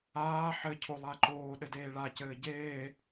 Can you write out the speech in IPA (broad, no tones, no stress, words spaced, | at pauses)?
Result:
aː ħɘcʰo lˠaǃoːɗɘ deːɭacɘː ɟeː